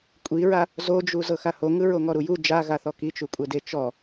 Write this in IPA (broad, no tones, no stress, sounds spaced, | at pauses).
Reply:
kʷʼ i ɹ a | z o d͡ʒ u z ɤ x a h o ŋ ɯ ɹ o ŋ ɔ ɾ u j u d͡ʒ a ɣ a θ ɔ k i t͡ʃ u kʷʼ ɛ d e t͡ʃ ɔ